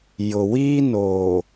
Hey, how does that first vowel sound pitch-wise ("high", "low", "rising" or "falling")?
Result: low